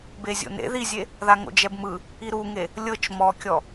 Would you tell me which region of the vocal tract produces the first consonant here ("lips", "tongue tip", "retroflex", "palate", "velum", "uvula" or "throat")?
lips